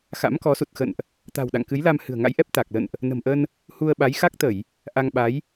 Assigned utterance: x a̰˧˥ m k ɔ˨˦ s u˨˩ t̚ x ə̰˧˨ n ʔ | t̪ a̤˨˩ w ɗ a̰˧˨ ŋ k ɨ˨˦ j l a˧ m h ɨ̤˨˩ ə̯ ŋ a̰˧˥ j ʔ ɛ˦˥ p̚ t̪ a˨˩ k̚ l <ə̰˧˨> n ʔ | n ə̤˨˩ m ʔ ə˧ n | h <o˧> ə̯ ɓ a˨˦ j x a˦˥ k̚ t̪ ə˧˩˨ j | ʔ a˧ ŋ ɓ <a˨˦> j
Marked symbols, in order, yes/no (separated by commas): yes, no, yes